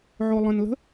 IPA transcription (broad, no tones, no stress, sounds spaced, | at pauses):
ʕ o lˠ ə̃ n l ə̤